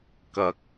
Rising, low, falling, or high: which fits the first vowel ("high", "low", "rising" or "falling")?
low